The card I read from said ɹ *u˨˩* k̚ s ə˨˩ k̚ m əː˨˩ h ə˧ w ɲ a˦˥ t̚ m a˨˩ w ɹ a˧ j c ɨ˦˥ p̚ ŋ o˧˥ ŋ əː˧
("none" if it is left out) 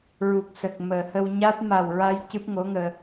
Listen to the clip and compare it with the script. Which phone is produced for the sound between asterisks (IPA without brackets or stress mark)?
u˨˩